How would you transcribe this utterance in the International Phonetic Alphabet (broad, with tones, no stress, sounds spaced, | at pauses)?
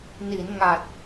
n i˩˦ n ŋ a˨˩ t̚